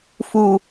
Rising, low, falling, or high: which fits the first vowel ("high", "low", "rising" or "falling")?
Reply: low